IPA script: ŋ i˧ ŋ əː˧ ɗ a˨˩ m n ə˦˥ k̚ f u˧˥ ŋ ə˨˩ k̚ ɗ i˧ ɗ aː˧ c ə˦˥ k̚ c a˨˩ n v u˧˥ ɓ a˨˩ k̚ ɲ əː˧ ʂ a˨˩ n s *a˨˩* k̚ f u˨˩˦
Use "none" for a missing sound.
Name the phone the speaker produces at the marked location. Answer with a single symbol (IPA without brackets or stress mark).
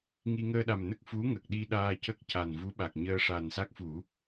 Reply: a˦˥